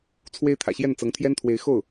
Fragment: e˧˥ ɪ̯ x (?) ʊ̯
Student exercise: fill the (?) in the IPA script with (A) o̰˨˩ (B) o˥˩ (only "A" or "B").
B